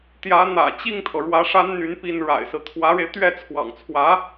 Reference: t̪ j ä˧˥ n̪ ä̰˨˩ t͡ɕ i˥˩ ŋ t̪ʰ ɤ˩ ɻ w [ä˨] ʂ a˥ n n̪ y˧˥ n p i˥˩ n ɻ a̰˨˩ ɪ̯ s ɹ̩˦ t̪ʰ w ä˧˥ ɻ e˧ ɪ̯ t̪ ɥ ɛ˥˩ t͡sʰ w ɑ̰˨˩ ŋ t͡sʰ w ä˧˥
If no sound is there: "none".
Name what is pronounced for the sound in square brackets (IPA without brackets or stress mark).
ä˧˥